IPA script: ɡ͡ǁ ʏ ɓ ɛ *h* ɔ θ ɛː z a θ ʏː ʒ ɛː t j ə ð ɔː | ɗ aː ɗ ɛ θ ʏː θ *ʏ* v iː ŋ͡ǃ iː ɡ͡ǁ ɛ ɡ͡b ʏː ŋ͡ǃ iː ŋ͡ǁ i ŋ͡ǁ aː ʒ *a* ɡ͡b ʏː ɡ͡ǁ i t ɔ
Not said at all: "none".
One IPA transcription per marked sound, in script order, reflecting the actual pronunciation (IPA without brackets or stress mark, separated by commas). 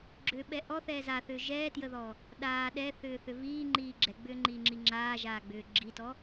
ʔ, ʏ, aː